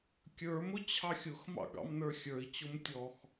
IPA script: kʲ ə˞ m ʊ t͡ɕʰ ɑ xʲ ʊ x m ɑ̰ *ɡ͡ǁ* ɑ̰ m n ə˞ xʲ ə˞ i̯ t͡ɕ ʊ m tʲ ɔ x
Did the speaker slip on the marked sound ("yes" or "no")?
yes